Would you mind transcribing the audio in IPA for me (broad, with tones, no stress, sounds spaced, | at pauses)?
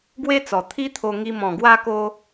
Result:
ɡ w e˦ t͡s ɔ˨˩ t̪ʰ i˦ t̪ʰ o˧ ŋ i˧ m ɔ̃˨˩ ɡ w a˧ k o˧